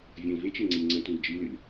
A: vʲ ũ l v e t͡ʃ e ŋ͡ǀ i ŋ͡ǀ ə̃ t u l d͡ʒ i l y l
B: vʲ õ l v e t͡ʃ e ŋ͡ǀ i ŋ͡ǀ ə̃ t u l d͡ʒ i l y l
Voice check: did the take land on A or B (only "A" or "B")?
A